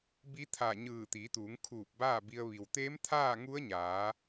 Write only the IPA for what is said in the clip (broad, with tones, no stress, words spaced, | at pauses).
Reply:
bi˧˥t̪ʰa˧˩ɲɯː˧˩ t̪iː˩˧t̪uː˩˧ŋkʰuː˧˩p̚ baː˥˨bi˧ə̯ ʋi˩wt̪eː˧˥m t̪ʰaː˥˨ŋu˧˥ə̯ɲaː˩˧